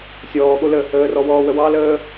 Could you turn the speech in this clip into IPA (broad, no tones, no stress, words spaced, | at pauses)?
sʲɔːɠo lə | əːrɔwɔːwə wɑləː